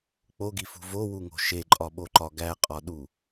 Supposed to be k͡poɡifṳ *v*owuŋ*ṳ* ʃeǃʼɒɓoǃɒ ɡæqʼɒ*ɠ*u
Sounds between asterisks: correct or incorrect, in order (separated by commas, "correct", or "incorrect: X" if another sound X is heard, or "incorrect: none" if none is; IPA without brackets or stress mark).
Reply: correct, incorrect: o̤, incorrect: ɗ